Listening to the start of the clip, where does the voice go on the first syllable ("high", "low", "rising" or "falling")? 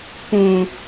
low